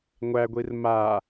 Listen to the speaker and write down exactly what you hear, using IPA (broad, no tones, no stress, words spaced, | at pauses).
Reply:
ŋʷæɡʷir ma